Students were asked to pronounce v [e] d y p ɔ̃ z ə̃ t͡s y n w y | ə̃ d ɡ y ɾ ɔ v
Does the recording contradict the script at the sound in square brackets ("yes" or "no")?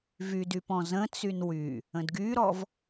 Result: yes